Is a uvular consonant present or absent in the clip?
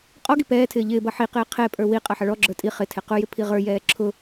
present